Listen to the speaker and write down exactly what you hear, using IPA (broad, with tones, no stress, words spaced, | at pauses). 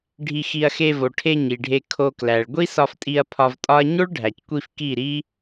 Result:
ɖʱi˧xi˧ɐ̯xe˧ vo˨ʈʰe˧ ɲi˨ɖʱe˧ kʰo˧klæ˨ɭ ɡʷi˦sɒ˧ftʼi˧ɐ̯ pʰɒ˧vtʼɒ˦ɐ̯ ɲo˦ɭɖʱæ˨ckʷi˧f ki˦˨ɾi˦